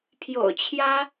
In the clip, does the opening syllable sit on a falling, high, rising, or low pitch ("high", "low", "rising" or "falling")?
low